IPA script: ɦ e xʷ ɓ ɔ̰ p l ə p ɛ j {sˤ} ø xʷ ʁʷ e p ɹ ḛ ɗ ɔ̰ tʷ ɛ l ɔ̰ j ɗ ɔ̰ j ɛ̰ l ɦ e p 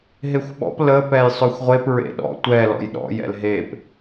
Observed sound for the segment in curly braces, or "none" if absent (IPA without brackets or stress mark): sˤ